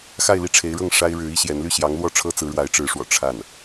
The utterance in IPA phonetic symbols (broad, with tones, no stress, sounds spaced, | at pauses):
x a˥˧ ɪ̯ l i˥˩ ʈ͡ʂʰ e˧˥ ɪ̯ ɻ ɤ˥˩ ŋ ʂ a˥ ɪ̯ ɻ ɻ̩˧˥ i˥ ɕ j ɛ˧˥ n l y˥˩ ɕ j ɑ˧˥ ŋ l w ɔ˥˩ ʈ͡ʂʰ ɤ˥ t͡s ɹ̩˧˥ ɻ w a˧˥ ɪ̯ ʈ͡ʂ ɻ̩˧˥ ʂ w ɔ̰˨˩ ʈ͡ʂʰ a˥˩ n